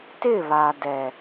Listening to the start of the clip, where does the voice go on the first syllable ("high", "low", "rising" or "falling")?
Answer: falling